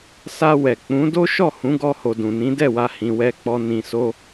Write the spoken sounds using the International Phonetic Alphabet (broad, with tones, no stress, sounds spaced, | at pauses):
s a˧ w ɛ˨ k͡p ũ˨˦ d o˦ ʃ ɔ˦˨ h ũ˨˦ ɡ ɔ˧ h o˨ d ũ˨ n ĩ˨˦ d ɛ˦˨ w a˧ h ĩ˧ w ɛ˦ k͡p ɔ˦ n ĩ˧ s o˦